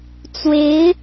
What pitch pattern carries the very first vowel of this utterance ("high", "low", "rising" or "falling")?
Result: rising